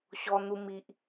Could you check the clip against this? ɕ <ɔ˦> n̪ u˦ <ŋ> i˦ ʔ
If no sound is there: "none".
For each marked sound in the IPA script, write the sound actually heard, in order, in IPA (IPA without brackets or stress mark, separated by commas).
ɔ˦, m